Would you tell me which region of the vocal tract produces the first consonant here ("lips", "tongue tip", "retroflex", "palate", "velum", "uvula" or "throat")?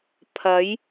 lips